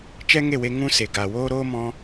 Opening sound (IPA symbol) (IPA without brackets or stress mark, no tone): t͡ʃ